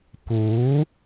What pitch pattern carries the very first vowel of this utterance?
rising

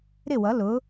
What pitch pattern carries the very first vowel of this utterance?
falling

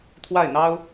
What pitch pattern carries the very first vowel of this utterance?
falling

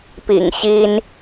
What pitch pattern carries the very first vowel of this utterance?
low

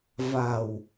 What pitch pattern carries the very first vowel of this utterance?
low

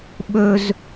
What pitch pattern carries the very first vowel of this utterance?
high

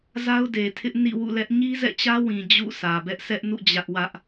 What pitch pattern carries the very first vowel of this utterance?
high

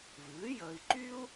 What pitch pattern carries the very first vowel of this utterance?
rising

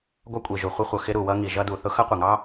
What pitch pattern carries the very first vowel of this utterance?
high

